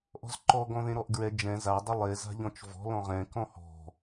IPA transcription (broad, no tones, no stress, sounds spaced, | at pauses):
ʔ ɔ̤ z ǃ ɔ ɡ ɔ̃ ð ẽ ɾ ɔ ʔ ɡ ɹ ɛ d͡ʒ ɛ̃ z a dˤ ʊ lˠ e z a̤ ʎ ɔ̃ t͡ʃ v ɔ̤ l ɔ̃ ʁ ɛ̃ k ɔ̃ h ɔ̤